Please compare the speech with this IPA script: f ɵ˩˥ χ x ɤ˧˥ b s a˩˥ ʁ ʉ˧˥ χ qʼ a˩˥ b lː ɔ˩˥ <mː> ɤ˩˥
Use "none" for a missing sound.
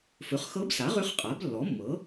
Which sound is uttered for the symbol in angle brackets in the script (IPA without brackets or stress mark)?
mː